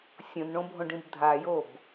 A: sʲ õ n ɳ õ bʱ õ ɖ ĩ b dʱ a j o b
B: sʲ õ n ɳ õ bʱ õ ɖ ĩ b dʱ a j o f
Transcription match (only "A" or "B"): A